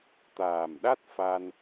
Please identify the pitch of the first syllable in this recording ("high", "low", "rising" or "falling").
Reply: low